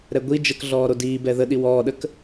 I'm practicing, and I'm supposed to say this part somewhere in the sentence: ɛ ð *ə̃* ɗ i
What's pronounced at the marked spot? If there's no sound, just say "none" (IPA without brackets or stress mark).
ə